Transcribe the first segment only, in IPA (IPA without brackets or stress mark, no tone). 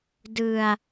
d